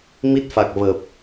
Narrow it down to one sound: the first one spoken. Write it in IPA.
m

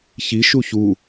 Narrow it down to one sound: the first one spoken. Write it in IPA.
ç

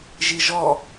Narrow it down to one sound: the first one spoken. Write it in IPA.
ʒ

